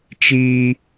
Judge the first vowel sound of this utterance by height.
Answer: high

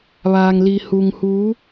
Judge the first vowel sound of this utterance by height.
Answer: low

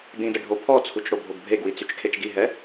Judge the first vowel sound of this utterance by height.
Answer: high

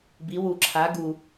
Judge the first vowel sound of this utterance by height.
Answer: high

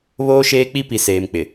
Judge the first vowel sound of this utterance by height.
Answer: mid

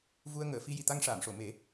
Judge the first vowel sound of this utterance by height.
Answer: high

